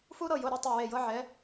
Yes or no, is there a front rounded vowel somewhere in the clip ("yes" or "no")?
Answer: no